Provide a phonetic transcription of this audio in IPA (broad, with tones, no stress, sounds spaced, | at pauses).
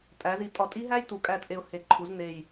tʼ æ˩˧ z i˩˧ tʼ ɒ˨˩ tʼ i˦˥ ɦ æ˦˥ j t u˩˧ kʼ æ˨˩ t ʔ e˨˩ ʊ̯ h e˩˧ ǃʰ u˩˧ z n e˨˩ j